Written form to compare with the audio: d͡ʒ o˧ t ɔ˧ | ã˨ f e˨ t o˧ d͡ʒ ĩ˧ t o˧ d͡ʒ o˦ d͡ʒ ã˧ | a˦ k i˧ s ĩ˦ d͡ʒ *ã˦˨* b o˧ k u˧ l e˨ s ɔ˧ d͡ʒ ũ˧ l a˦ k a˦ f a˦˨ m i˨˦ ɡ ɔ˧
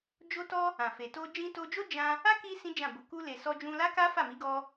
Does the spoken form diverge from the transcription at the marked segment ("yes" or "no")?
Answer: no